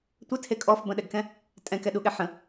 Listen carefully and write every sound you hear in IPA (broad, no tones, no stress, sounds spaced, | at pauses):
tʷ ɘ tʰ e kʼ ɔ f b ə̃ ɗ ɛ ɡ k ɛ̃ | tʼ ɛ̃ k ɛ ɗ u ɠ ɛ ħ ə̃